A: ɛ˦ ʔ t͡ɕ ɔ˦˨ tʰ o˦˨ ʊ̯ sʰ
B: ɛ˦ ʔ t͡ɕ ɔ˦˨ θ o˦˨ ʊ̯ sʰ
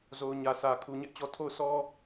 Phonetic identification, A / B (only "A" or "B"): A